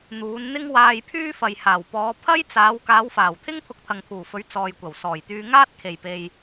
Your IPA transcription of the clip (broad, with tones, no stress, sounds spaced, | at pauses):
n̪ uː˨˧ n n̪ ɪ˥ ŋ w aː˧ j pʰ yː˥ f ɐ˨ j h aː˨˩ w p ɔː˨˧ pʰ ɐ˥ j t͡s aː˨˧ w k aː˨˧ w f aː˨˩ w t̪ʰ ɪ˥ ŋ pʰ ʊ˧ k̚ t̪ʰ ɐ˨ ŋ pʰ uː˨˩ f ɵ˨˧ ɥ t͡s ɔː˨ j kʷ ɐ˨˩ w s ɔː˨˩ j t̪ yː˧ ŋ aː˥ t̚ kʰ e˨˩ j p e˨ j